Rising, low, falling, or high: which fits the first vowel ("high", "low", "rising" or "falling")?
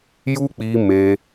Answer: high